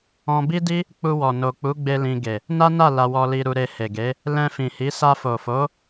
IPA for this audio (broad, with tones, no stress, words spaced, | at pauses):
ɔ̃˧bi˦di˦ | k͡pu˧wɔ˨ no˨k͡pu˨˦ɡ͡be˧ lĩ˧ɡe˨ | na˦na˦˨ la˧wɔ˧li˧ ɾu˧ɾe˧he˨ɡe˨˦ | lɛ̃˧fĩ˨hi˨˦ sa˧fo˨fo˨˦